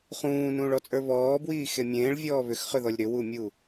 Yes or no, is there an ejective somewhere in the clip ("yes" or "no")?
yes